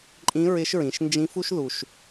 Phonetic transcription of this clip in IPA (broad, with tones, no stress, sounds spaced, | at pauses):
ǃʼ ĩ˧˥ ɹ ɪ˧˥ ʃ ɹ ĩ˩˧ ʃ n d͡ʒ ĩ˧˥ f u˥ ʃ ð u˩ ʃ